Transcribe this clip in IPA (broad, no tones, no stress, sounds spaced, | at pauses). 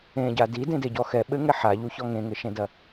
ẽ ɟ a d i d ẽ d e ɟ ɔ x ɛ ɓ ɘ ŋ ɛ ħ a ʎ u ç ɔ ŋ ẽ ŋ ɘ ʃ ẽ d ɐ